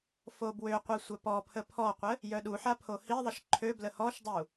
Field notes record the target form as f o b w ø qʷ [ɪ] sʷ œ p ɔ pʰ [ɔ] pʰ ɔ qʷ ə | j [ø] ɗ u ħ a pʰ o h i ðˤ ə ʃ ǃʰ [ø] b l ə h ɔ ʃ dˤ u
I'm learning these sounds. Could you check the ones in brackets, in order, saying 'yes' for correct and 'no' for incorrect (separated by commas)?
no, no, no, yes